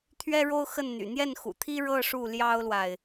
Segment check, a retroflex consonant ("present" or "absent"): present